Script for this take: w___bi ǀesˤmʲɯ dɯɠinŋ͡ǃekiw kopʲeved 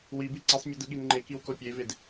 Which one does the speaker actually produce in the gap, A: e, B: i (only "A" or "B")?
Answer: B